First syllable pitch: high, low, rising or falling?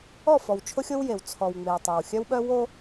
falling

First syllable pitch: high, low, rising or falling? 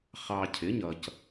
low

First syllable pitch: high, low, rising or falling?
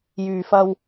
low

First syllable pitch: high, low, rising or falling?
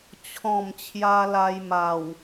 low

